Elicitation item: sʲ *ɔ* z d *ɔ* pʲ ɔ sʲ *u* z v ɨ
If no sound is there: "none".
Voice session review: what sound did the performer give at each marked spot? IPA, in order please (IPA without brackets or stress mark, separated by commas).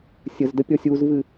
ə, ə, u